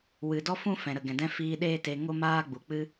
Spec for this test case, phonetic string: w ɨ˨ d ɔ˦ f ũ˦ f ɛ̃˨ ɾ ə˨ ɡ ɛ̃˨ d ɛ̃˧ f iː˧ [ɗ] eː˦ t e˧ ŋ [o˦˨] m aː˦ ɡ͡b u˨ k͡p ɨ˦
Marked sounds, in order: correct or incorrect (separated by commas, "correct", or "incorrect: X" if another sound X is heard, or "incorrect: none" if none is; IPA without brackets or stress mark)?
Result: correct, incorrect: o˦